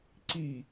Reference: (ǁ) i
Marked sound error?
yes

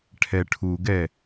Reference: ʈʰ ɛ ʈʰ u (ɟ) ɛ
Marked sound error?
yes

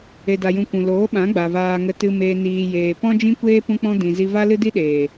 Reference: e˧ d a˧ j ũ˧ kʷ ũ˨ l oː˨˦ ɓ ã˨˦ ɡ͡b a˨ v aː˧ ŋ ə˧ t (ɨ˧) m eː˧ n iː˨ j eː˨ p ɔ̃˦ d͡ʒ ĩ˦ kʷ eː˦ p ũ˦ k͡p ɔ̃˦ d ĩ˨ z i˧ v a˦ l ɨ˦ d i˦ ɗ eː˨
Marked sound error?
no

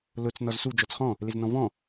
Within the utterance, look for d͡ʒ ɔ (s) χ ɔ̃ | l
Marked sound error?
yes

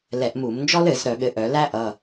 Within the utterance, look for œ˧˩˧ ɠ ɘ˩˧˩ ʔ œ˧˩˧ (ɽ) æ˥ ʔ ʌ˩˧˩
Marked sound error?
yes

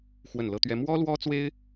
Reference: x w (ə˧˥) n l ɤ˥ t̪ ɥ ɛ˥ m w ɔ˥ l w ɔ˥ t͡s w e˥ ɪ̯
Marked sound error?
yes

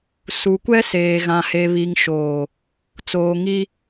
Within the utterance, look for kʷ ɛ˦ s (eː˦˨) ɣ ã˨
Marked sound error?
yes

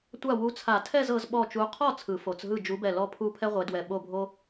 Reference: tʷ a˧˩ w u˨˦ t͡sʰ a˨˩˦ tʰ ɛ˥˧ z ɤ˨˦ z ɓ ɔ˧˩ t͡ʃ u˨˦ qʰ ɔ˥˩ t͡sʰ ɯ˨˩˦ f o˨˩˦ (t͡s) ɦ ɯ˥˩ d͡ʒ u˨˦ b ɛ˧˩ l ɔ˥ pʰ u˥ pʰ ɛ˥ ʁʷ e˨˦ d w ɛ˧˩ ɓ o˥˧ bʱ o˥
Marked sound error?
no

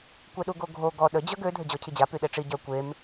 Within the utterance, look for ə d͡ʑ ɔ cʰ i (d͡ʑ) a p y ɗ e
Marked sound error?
no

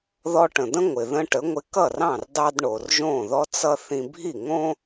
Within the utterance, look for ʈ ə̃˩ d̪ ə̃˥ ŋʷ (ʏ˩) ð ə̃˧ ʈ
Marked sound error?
yes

